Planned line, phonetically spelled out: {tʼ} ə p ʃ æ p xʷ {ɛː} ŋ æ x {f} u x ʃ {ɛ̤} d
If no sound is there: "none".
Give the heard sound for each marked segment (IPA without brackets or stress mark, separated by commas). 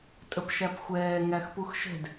tʼ, ɛː, p, ɛ̤